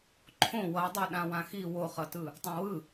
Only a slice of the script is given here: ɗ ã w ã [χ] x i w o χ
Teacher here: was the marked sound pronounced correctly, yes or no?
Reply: no